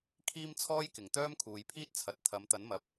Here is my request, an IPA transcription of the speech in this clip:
kʰ iː˥ m t͡sʰ ɔː˥ j k ɪ˨ ŋ t̪ œː˥ m kʰ uː˨˧ j pʰ iː˥ t̚ t͡sʰ ɐ˨ t̚ t̪ʰ ɐ˨˧ m t̪ ɐ˨˥ n m ɐ˨˥ p̚

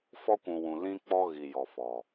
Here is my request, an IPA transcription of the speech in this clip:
f ɔ˦ kʷ ũ˨ w ũ˨ l ĩ˦ k͡p ɔ˦ ɣ i˨ j ɔ˨ f ɔ˨

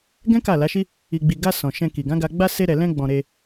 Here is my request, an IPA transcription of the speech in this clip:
ɡ ɛ̃˦ k a˦˨ l a˨˦ ʃ i˦ | i˨ ɡ͡b i˨ ɡ a˧ s ɔ̃˨ ʃ ɛ̃˧ k i˨ ɡ ã˨˦ ɡ a˧ ɡ͡b a˦ s e˦ ɾ ɛ˧ l ɛ̃˦ ɡ͡b ɔ̃˧ ɾ e˧

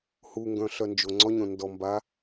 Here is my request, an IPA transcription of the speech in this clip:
h u ŋ ɡ œ̃ ɬ œ n d͡ʒ o ŋ͡ǀ ɔ ɲ õ n d ɔ m b a

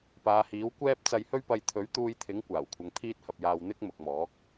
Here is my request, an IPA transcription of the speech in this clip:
p aː˨˧ h iː˨˥ w kʷ ɛː˥ p̚ t͡s ɐ˧ j h ɵ˥ ɥ p ɐ˧ j t̪ʰ ɵ˨˥ ɥ t̪ uː˧ j t̪ʰ ɪ˨˥ ŋ kʷ aː˨˩ w kʷʰ ɐ˨˧ ŋ t̪ʰ iː˥ t̚ h ɐ˧ p̚ j aː˧ w n̪ ɪ˥ k̚ m ʊ˨ k̚ m ɔː˨˥ k̚

